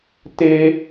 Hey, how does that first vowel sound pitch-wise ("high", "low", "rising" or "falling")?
high